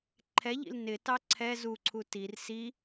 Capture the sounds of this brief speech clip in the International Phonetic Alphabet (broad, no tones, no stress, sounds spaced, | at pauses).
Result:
ǃʰ ɛ ʎ ḭ l n ɪ t ɑ ǀʰ ɛ z u ǀʰ u t i r s i